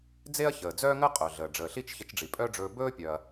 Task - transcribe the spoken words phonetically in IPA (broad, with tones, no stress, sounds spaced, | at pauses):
d͡z e˥ ɐ̯ ç əː˩ d͡z œː˥ ŋ əː˥ qʼ œ˩ ɮ əː˩ ɖ͡ʐ əː˩ ɬ i˥ t͡ʃ ç ə˧ t͡ʃ ɖ͡ʐ i˩ pʼ œ˥ ɖ͡ʐ ɵː˧ b ɵː˥ pʲ œ˩ ɐ̯